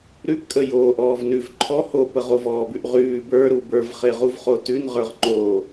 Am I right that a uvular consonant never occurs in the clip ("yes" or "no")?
no